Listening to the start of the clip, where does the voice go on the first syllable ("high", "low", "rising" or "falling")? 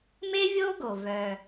high